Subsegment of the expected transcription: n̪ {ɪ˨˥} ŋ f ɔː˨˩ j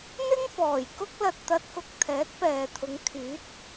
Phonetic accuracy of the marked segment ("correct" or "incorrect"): incorrect